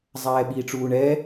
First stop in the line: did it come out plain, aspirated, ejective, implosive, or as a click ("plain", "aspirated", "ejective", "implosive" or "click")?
implosive